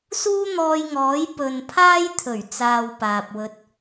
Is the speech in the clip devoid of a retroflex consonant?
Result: yes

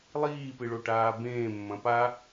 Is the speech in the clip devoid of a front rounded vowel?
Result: yes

